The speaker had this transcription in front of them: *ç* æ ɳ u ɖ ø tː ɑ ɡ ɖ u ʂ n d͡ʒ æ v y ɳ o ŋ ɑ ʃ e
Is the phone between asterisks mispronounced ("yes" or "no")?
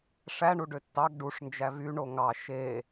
yes